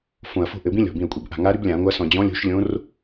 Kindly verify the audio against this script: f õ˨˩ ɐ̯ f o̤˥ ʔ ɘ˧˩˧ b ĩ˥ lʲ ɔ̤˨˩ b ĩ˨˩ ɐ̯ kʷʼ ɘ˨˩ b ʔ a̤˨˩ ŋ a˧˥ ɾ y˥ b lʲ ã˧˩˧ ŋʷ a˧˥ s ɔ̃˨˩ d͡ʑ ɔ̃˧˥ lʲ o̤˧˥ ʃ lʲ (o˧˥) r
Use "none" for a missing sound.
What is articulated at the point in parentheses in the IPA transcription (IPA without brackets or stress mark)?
õ˧˥